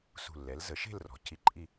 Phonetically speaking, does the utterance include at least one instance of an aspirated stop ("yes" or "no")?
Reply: yes